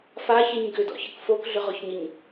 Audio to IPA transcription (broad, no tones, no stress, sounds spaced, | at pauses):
f a ç e ɲ ɡ ʏ d ɔ̰ ç ə k f o k ɮ ʏ ʁ ɔ ç ɲ ə ɲ